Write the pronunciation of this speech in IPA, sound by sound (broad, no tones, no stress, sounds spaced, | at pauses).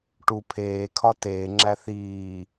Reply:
ʈ u pʰ eː kʰ ɒ t eː ŋ͡ǁ æ θ iː